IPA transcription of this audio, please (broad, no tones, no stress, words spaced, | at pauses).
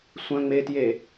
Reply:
sʷœ̃ŋ͡metje